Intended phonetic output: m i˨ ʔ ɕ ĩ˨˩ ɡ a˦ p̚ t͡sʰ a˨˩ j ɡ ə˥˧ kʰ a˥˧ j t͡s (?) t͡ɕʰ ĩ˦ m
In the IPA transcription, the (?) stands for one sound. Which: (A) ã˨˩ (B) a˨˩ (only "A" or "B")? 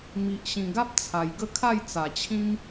B